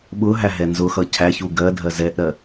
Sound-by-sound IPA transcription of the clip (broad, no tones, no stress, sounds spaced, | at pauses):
ɓ ʊ ɦ æ ɦ ɛ n z ʊ x ʌ cʰ æ ç u ɡ ɜ dʱ ɜ z ɛ ʔ ɾ ɜ